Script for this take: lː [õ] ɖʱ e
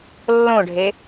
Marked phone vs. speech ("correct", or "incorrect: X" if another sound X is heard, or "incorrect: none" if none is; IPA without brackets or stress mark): correct